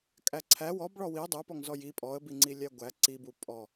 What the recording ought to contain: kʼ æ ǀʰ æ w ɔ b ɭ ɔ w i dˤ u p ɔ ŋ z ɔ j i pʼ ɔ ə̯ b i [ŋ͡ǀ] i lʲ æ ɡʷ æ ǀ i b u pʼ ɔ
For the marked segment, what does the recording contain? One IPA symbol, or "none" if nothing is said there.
ŋ͡ǀ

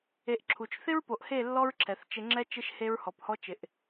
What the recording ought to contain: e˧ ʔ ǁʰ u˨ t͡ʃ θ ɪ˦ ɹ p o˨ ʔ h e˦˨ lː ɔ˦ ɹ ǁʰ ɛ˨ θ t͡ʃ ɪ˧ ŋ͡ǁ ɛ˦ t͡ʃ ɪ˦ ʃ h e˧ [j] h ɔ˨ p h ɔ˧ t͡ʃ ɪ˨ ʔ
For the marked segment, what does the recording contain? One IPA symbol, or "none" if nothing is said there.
ɹ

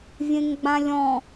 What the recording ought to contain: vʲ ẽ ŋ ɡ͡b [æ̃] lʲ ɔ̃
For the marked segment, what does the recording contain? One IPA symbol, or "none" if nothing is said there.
ã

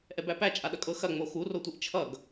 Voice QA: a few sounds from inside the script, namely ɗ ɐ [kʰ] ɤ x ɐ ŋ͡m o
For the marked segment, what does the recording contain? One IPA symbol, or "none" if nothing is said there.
kʼ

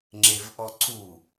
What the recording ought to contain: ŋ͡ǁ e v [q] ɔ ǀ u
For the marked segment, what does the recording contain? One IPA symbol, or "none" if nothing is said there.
ʔ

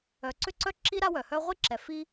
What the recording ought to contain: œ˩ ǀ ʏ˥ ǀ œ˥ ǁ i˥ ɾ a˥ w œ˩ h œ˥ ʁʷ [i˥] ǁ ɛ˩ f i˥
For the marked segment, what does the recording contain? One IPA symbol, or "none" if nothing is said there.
i˥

